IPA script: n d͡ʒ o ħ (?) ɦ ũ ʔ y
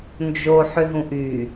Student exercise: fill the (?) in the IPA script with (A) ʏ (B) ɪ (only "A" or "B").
A